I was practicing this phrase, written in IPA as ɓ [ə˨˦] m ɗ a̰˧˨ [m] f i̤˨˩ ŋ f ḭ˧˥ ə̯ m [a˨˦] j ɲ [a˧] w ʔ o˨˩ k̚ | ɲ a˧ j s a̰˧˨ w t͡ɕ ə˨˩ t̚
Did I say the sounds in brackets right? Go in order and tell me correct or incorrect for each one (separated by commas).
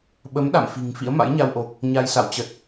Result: correct, correct, incorrect, correct